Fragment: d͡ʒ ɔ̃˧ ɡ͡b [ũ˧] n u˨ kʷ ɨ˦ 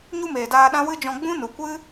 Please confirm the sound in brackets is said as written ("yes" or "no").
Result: no